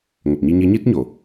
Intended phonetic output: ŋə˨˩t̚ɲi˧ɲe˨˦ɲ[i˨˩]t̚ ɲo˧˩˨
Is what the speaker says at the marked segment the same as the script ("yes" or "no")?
no